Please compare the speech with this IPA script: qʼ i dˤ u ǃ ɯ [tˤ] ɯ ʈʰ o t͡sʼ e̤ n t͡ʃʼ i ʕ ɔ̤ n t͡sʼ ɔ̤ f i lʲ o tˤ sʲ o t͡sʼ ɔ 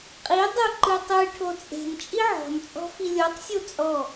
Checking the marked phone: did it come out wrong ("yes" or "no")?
no